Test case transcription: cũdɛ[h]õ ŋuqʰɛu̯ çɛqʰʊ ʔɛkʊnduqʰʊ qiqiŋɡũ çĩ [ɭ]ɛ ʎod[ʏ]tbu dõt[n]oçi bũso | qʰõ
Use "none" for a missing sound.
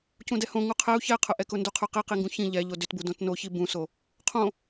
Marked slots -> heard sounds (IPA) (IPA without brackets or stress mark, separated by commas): h, ʎ, ʏ, n